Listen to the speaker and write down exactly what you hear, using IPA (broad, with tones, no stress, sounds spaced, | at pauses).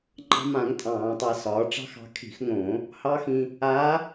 ŋ͡ǃ ɑ̤˧ m ã˧˩˧ ŋ tʼ ɑ̃ː˧˩˧ tˤ a˧ s ɒː˩˧ ʈ͡ʂ ɑ̤˧˥ x ɑ̤˧ kʰ i̤˧˩˧ x ŋ õ˧˩˧ | h ɑ˧˥ x ĩ˧ | a˧˥